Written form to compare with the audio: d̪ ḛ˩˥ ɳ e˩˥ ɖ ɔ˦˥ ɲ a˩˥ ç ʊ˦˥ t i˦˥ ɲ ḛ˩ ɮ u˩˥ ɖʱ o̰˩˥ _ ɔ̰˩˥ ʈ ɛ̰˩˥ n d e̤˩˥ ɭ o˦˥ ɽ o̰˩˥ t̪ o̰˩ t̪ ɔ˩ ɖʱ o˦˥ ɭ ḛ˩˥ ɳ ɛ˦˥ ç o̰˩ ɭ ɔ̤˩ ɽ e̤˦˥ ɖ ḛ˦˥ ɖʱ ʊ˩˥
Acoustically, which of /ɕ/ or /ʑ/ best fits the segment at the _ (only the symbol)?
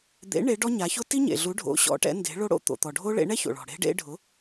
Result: ɕ